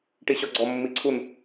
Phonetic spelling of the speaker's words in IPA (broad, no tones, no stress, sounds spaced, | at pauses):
ʈ i ɕ ɔ ɡ͡ǀ ɔ mː i ǀʰ u n